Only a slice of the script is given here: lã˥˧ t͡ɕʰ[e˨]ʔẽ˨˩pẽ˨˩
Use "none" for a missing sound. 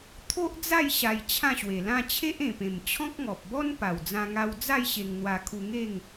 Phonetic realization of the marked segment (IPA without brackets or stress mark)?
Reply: e˦